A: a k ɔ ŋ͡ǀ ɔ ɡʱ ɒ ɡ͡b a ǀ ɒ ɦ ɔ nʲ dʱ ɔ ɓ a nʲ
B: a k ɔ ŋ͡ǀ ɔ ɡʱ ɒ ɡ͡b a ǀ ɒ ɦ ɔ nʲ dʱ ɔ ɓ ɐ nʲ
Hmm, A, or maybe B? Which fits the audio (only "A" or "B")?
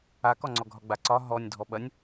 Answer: B